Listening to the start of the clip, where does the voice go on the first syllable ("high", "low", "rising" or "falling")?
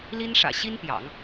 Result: high